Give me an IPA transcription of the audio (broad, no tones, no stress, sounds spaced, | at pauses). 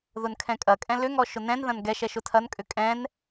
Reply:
ð ʊ n kʰ ɛ̃ kʼ ɐ kʼ ɛ̃ l ʏ ŋ ɔ ʃ ʊ n ɛ̃ n ð ɐ̃ n ɡ ɛ ʃ ɛ ʃ ʊ tʰ ɐ n kʼ ʏ kʼ ɛ̃ n